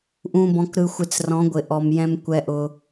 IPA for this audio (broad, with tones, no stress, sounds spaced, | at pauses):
ʔ ũ˨ b ɔ̃˨ k ɾ ɯ˨ xʷ ɪ˨ t͡s r ɔ̃˨˦ ɡʷ ɪ˨ ʔ ɔ˨ m j ɛ̃˦ m kʷ ɛ˦ ʔ ʊ˦